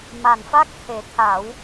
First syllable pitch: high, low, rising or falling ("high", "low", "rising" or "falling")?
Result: low